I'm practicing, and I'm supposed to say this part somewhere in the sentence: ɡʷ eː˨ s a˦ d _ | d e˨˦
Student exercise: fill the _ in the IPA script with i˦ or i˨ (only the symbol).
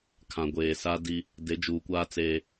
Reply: i˦